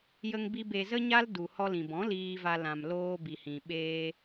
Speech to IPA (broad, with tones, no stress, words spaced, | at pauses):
jə˧ŋbi˧ be˨zə˧ɲa˧l du˨hɔ˧lĩ˨bɔ̃˨˦ liː˧va˧ lã˨m loː˧ bi˨hĩ˨ɓeː˧